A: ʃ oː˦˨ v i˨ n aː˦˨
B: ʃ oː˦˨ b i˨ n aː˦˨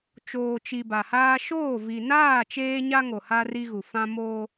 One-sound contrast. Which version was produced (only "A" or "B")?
A